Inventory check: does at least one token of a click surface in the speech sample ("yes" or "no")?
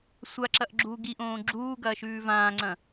yes